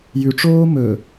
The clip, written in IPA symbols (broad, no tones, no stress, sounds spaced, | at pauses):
j ʉ ʈ͡ʂ oː m ɵ